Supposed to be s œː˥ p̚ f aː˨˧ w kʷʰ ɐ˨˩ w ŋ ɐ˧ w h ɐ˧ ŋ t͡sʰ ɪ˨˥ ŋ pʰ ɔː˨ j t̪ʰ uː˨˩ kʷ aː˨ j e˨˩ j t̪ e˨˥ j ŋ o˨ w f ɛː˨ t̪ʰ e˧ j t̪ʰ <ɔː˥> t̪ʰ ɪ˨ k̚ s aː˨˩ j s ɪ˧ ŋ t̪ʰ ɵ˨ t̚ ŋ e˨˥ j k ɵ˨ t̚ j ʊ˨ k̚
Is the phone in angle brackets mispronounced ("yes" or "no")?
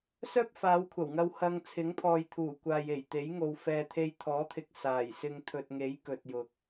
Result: yes